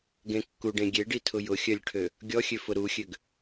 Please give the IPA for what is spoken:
ɡ ẽ kː u ɖ ẽ ɡʲ e ɖ i tʰ ʊ j ʊ xʲ œ lʲ ʈʰ ø | ɡʲ ɔ xʲ ø f ʊ ɾ u xʲ ø ɡ

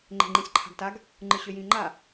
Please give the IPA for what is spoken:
ŋ͡ǃ e̤ ŋ͡ǃ ĩ sʲ ǃʰ a̤ ɡ t a ɡ | ŋ͡ǃ ɯ ɕ ø j ĩ ŋ͡ǃ a

